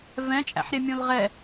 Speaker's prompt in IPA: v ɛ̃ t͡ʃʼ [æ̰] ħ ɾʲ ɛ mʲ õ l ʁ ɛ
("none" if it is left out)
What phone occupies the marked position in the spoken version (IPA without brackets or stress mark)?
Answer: æ̰